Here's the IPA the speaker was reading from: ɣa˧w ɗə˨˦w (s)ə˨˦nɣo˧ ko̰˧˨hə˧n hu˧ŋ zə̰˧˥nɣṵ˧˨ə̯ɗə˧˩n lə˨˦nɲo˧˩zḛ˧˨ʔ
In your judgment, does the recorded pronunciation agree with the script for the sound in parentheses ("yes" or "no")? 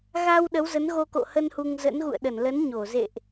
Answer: no